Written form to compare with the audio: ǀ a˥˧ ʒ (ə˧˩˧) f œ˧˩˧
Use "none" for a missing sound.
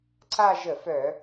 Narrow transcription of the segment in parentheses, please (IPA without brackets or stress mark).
ə˧˩˧